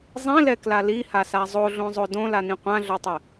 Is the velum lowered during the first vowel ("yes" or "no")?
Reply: yes